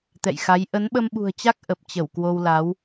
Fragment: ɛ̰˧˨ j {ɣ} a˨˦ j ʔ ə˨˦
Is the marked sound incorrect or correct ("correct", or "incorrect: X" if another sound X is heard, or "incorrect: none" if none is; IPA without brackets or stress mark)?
incorrect: x